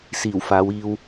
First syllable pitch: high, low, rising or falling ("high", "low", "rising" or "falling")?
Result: low